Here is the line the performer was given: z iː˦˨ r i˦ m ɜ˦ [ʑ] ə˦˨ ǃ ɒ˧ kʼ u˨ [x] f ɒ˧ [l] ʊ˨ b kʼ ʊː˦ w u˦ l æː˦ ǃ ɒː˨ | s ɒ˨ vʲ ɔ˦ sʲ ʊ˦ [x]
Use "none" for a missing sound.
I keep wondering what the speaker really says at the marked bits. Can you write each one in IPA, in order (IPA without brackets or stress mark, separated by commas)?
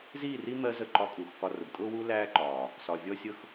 z, x, r, x